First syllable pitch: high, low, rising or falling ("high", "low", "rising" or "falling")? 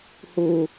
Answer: low